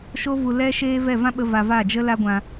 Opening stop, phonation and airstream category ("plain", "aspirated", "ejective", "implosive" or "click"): implosive